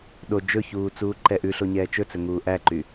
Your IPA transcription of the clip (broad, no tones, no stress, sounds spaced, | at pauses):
ɗ o d͡ʒ ɵ ç uː t͡s uː ǃ ɛ ʔ ʉ ɬ o ɲ ɛː t͡ʃ ɵ t͡s ɵ ŋ uː ʔ æ ǃ y